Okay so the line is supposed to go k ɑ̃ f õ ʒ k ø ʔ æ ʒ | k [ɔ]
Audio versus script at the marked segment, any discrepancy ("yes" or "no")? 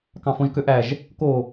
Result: yes